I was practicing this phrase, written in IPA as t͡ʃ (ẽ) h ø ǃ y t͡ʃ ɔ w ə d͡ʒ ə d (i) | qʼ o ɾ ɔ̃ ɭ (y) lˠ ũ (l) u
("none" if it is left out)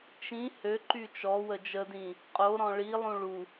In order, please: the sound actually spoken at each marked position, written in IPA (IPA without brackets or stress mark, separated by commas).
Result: ĩ, ĩ, i, ɭ